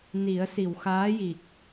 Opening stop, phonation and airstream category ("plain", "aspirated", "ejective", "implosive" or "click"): plain